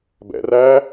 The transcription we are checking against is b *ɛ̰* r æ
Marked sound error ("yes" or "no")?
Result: no